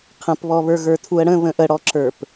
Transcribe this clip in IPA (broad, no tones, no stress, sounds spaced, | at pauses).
qʰ ə̃ p β ɔ β ə˞ ɣ ə˞ tʰ u ə̯ ɽ ə̃ β ə̃ ʔ ə ɽ ɔ ǁ ə˞ p